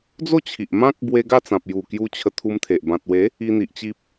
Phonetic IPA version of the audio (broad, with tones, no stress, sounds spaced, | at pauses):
d͡z o˥˧ t͡ɕʰ i˨ ʔ m ã˦ k̚ b w e˧ ɡ a˥˧ t͡s ã˨ p̚ j u˨˩ k j u˧ t͡ɕʰ ə˧ t̪ʰ u˧ m t̪ʰ e˨ ʔ b ã˨ t̚ w e˨˦ | i˧ n̪ i˨ ʔ t͡ɕ i˦ p̚